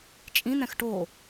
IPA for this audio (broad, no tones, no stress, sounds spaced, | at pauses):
t͡ʃʼ ĩ n̪ ɛ̃ x ʈ o